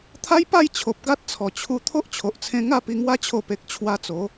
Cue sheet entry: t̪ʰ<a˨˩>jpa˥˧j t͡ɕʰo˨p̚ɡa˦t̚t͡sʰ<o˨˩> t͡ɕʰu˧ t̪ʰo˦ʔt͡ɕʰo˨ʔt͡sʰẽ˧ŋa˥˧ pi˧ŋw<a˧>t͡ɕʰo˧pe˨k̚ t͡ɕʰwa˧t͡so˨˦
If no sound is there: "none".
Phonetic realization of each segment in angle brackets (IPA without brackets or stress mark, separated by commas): a˦, ɔ˨˩, a˦